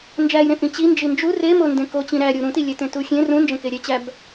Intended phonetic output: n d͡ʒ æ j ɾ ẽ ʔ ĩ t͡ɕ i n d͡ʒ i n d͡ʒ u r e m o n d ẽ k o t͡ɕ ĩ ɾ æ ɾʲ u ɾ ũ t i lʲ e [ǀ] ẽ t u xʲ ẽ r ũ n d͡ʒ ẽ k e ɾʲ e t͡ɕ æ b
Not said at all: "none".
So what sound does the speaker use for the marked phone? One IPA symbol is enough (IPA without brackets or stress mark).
t